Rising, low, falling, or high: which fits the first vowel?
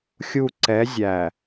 falling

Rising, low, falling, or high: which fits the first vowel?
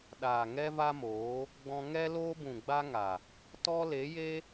low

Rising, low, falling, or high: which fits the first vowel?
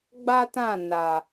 high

